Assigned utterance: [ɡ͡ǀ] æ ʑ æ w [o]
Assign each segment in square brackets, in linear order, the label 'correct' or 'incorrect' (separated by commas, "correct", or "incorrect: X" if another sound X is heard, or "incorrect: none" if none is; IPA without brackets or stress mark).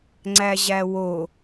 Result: incorrect: ŋ͡ǀ, correct